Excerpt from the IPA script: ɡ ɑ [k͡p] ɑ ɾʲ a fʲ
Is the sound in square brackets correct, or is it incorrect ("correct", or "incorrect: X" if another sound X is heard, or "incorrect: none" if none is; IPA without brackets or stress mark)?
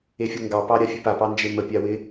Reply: incorrect: p